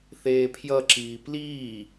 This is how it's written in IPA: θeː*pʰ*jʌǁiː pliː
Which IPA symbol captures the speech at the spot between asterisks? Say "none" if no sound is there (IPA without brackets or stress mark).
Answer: pʰ